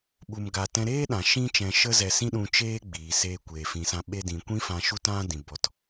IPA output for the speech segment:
ɓ u˧ m ɡ a˧ t ɛ̃˧ ɾ eː˦ ɗ ã˨ ʃ ĩ˦ t͡ʃ ɛ̃˧ ʃ ə˦ z ɛ˧ s ĩ˦ ɗ ũ˧ t͡ʃ eː˦ ɡ͡b iː˨ s eː˧ kʷ eː˨ f ĩ˨ s ã˧ ɓ e˧ d ĩ˨ kʷ ĩ˦ f ã˧ ʃ u˦ t ã˦ d ĩ˨ b ɔ˨ t

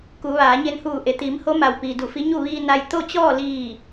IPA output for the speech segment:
k u˩˧ ʋ aː˩˧ ɲ e˧ n h uː˧˩ ʔ e˩ t̪ iː˩˧ m h o˧˥ m a˩ w p iː˩ d u˧˩ f i˧˥ ɲ u˥˨ ʋ iː˧ n a˧ j t̪ o˥˨ t͡ɕ ɔː˥˨ l iː˧˩

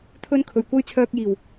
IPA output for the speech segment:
t̪ʰ ɵ˥ n kʰ ɵ˨˩ ɥ kʷ ɐ˥ j t͡sʰ œː˧ k̚ j iː˨˩ w

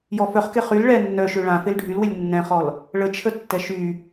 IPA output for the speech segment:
j ɔ f œ χ k e χ y l ɭ ɛ nː œ ʃ ø ɭ ã f e l ɖʱ y l w ɪ lʲ nː ɛ̃ χ ɔ l | ɭ ə t͡ʃʰ ə tː ɛ ʃ y

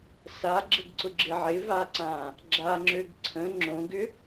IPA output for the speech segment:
s a ɡ͡ǁ ə ɡ ǀ ʊ ɡ͡ǁ ɪ ʕ ɪ v a ǀ ã | ɡ͡ǁ a ŋ͡ǁ ø ɡ ǀʰ ə̃ ŋ͡ǁ õ ɡ ʏ

